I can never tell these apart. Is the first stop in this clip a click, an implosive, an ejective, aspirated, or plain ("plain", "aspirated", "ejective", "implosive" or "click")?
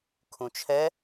aspirated